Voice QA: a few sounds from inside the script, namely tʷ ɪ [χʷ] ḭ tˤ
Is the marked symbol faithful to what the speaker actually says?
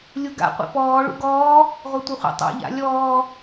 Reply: yes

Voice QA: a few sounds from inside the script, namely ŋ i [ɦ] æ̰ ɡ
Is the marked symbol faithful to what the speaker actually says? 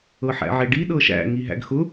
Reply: yes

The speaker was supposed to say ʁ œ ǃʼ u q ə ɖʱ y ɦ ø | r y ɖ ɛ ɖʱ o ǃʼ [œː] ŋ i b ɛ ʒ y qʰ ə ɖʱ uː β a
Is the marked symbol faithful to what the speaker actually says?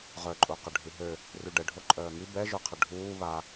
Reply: yes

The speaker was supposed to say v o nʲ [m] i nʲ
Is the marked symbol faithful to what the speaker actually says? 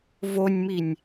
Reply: yes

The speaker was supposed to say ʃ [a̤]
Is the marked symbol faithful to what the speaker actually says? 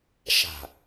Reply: yes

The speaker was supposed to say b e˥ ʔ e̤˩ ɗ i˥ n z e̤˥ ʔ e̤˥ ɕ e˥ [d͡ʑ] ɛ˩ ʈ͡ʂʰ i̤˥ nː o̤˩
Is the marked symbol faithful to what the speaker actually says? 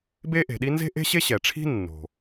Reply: no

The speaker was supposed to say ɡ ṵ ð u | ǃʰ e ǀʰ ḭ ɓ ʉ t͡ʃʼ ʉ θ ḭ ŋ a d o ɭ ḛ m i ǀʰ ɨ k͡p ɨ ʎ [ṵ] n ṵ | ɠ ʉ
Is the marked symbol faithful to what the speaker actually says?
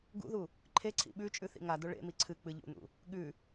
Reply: yes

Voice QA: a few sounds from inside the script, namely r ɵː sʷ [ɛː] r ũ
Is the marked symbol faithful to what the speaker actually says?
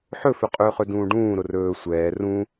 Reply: yes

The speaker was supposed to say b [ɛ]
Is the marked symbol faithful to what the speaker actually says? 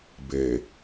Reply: no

